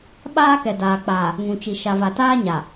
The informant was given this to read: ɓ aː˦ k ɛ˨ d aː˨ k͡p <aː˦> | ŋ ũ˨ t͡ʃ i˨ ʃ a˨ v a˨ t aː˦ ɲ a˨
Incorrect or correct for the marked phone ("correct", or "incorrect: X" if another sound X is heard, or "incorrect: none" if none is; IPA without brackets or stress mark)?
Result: incorrect: aː˨